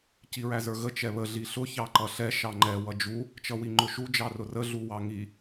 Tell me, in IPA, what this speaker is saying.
c i ɹ æ z ə˞ ɣ ə t͡ʃ ɛ β ə ɮ i ɬ ʊ ç ɑ ǃ ʌ ɬ ɛ ʃ ɑ ŋ͡ǃ ɛ w ʌ d͡ʒ u | t͡ʃ ʌ w i ŋ͡ǃ ʊ ʃ u d͡ʒ ɑ r ʊ r ə ɮ u w ɑ ŋ i

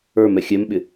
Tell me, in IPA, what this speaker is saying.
ə˞ m ɛ xʲ ɛ m ɓ ɪ

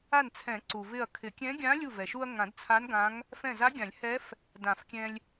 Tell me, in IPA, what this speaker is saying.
a˧˩ n t͡sʰ ɛ̃˨˩˦ ǀ u˩ v ɪ˧˩ ɐ̯ kʰ ɪ˨˩˦ kʲ ɛ̃˧˥ ɡʲ ã˧˥ lʲ u˧˩ v ɛ˩ ʃ u˧ ɐ̯ ŋ ã˨˩˦ d t͡sʰ a˧˥ n ɡ ã˧˥ ŋ | f ɛ̃˧˩ z a˧˥ ɡʲ ã˨˩˦ lʲ h ɛ˧˥ f | d ã˨˩˦ f kʲ ɛ̃˧ lʲ

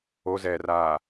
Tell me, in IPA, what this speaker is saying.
o z ɛː r aː

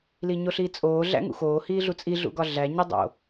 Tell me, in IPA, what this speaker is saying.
l i ɲ o ɬ iː t͡sʼ oː ɮ æ̰ ŋ ṵ x oː h iː ɮ u t͡sʼ i ɮ ṵ ɡ ɒ ɮ æ ɲ i dˤ o̰

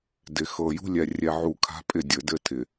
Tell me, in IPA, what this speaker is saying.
d ɪ˨ x ɤ˨ j ṳ˦ lʲ ɛ˨ rʲ ɛ˨ ʕ u˨ kʰ a̤˦ pʼ ɪ˦˨ dʲ ɘ˨ d ɘ˦ tʰ ɪ˨

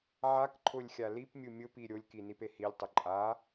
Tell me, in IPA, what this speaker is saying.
ʕ a k ǃʰ ʊ lʲ xʲ a l i p mʲ u mʲ ʊ p i ɾʲ o lʲ k i n i p e h i lʲ tˤ ʊ ǃʼ a

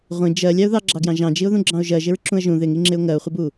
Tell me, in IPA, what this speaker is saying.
ʁʷ ĩ d͡ʒ ɜ lʲ ɑ ʊ̯ ð ɑ ɡ͡ǁ ɑ ɡ j ɑ̃ ʒ ɑ̃ d͡ʒ i ʊ̯ ð ũ ɡ͡ǁ ɑ̃ ʊ̯ ʒ ɜ ʒ ɪ ɹ ǁ ũ ə̯ ʒ ũ ð ɪ ŋ i ŋ͡ǁ ɪ ʊ̯ ŋ ɜ ʊ̯ χʷ ɪ b u

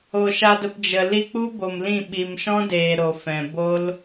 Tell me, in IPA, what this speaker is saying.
o˨ ʃ a˧ d ə˧ p d͡ʒ ə˨ l i˧ k͡p u˦ b o˨ m l ĩ˦˨ ɓ i˨ m ʃ ɔ̃˦ d eː˨ ɾ o˨ f ɛ̃˨ b o˦ l

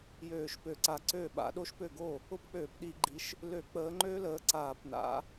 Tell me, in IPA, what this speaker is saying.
j øː˧˩˧ ʃ p ø˧˩˧ ǀ a˨˦ ǀ ø˥˩ ɓ a̰˨˦ ɗ o˦˥ ʃ p ø˥˩ ɡ o˥˩ | ʊ˦˥ p k͡p øː˧˩˧ p ɗ i˧˩˧ ɡ͡ǃ i˨˦ ʃ | l ø˧˩˧ k͡p əː˨˦ ŋ͡ǃ ø˦˥ l əː˨˦ ǀ aː˧˩˧ p n a̰˨˦

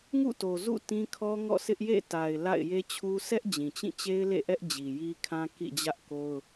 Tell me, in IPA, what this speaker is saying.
ŋ ṵ˦˨ t o˨ z ṵ˦˨ t ĩ˦ kʰ ɔ˦ ŋ ɔ̰˦˨ s ɪ˦ ʔ j ḛ˦˨ t a˨ ɪ̯ l a̰˦˨ ɪ̯ j e˦ t͡ɕʰ u˦ s ɛ˦ ʔ d͡ʑ ĩ˨ t͡ɕ ĩ˦˨ t͡ɕ e˦ ɪ̯ l ḛ˦˨ ʔ ɛ˦ ʔ d͡ʑ i˨ j i˦ kʰ ã˦ k ḭ˦˨ d͡ʑ ä˦ ʔ k o˦ ʊ̯

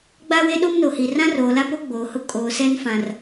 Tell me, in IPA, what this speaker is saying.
ɡ͡b a˦ w e˦ ɗ o˦ m n o˨ h i˨ r ã˦ r oː˨ l a˦ p o˦ ɡ͡b oː˨ h ʊ˦ kʼ oː˨ s ɛ˦ n f ã˨ r

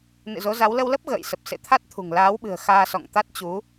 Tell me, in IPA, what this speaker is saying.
n ɨ̰˧˨ z o˨˦ z a˨˦ w l ə˧ w l ə˦˥ p̚ ɣ ə̰ː˧˨ j s ə˨˩ p̚ s ḛ˧˨ t̪ʰ a˦˥ t̚ t̪ʰ ṳ˨˩ ŋ l aː˨˦ w ɓ ɨ̤˨˩ ə̯ x aː˧ s ɔ̰˧˨ ŋ t̪ a˦˥ t̚ t͡ɕ u˨˦

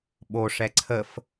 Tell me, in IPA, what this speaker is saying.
ɓ o ʂ ɛ ǀʰ ə f

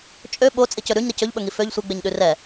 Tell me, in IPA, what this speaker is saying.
t͡ʃʼ ø ɓ o t͡sʼ i c ɵ ɾ ʉ ɲ ɾ i c ɵ ʎ ɓ ɵ ŋ i f ø ʎ sʷ e ɡ͡b e ɲ ɗ ʉ r ɛ

